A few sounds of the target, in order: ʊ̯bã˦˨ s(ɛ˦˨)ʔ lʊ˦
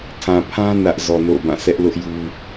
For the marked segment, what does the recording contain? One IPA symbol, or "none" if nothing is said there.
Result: ɛ˦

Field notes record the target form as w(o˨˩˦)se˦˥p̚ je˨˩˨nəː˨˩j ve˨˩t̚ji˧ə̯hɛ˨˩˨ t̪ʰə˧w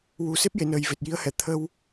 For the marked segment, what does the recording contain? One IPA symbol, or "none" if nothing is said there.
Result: u˨˩˦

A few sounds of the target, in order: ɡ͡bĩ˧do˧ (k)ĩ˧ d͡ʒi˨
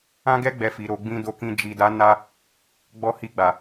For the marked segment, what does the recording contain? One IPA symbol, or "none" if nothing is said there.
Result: k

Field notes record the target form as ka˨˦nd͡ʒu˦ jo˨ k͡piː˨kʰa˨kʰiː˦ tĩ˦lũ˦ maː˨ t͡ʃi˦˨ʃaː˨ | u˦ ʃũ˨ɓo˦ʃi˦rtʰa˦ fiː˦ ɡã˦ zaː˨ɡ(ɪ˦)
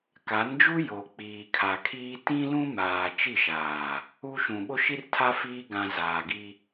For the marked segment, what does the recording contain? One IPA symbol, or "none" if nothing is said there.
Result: i˦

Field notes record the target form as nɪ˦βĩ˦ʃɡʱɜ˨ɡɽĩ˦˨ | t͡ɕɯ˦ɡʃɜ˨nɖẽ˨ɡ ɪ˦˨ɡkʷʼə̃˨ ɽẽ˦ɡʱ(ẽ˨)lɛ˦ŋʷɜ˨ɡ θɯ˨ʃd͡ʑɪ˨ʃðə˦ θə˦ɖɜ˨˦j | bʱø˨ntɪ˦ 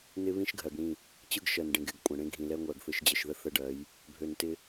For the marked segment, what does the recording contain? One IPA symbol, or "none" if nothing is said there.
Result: ĩ˨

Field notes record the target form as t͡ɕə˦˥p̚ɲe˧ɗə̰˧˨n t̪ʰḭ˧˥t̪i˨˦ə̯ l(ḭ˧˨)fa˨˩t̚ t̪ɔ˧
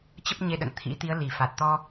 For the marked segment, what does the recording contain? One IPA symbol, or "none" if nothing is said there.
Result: i˨˩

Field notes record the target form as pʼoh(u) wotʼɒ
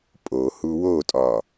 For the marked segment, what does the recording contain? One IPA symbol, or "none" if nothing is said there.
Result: u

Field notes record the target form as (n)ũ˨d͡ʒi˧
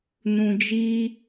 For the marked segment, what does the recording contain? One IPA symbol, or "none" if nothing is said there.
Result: n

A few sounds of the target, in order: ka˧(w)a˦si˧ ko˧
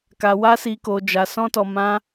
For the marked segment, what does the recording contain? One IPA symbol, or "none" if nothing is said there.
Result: w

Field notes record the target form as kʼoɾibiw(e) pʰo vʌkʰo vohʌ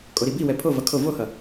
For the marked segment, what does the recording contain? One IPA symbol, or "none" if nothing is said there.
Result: ɛ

